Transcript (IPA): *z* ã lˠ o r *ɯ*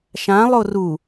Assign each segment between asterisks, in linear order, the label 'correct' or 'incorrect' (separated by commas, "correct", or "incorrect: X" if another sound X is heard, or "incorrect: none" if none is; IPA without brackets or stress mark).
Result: incorrect: ʃ, incorrect: u